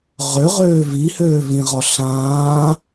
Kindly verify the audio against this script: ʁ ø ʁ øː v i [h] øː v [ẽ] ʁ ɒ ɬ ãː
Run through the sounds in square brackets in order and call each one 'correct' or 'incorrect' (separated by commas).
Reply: correct, incorrect